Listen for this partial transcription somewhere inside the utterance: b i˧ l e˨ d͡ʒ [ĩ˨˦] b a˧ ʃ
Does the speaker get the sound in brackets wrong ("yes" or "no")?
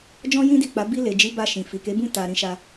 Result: yes